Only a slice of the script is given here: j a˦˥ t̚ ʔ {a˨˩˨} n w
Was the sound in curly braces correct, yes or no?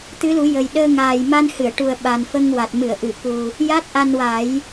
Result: no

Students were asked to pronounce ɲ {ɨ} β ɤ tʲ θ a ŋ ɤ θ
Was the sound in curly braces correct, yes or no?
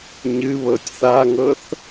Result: yes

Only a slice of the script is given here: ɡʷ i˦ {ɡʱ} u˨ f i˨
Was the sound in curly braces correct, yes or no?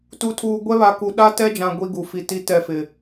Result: no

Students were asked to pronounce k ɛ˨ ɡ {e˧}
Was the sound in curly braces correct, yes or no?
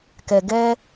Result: no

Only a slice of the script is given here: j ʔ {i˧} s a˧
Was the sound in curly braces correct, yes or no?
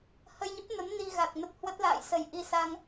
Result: yes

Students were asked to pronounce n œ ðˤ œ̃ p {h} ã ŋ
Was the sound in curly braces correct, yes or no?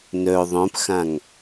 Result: no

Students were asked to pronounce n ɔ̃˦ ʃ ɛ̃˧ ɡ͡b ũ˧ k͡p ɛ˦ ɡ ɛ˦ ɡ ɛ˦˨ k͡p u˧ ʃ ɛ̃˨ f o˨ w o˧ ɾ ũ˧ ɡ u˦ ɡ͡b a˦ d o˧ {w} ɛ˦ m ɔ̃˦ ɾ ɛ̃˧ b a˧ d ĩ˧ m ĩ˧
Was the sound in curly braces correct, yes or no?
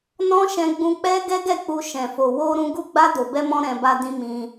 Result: no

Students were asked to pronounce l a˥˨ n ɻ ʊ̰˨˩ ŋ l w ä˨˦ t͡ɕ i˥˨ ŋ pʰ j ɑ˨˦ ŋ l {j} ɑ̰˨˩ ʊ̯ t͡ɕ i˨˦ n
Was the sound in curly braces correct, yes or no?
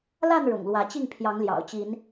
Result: yes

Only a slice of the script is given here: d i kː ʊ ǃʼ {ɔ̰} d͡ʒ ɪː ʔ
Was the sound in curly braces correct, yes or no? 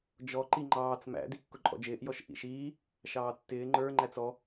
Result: yes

